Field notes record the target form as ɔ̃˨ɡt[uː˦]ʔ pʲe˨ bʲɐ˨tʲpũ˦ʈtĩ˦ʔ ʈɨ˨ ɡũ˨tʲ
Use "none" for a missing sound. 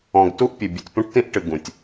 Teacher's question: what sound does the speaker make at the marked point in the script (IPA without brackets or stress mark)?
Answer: u˦